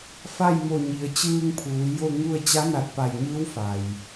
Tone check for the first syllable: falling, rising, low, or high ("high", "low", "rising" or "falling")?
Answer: falling